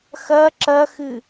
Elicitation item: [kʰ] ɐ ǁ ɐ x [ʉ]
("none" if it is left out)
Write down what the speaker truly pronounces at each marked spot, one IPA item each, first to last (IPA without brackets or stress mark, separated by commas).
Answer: x, ɨ